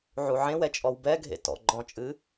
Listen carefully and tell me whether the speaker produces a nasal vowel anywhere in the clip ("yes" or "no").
yes